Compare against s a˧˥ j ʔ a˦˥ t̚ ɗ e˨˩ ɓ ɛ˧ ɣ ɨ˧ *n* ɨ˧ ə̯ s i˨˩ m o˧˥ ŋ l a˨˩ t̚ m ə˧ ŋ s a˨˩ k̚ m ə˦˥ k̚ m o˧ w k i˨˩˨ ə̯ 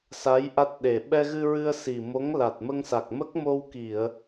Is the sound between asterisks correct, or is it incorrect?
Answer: incorrect